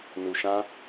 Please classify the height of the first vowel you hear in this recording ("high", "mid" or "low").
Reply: high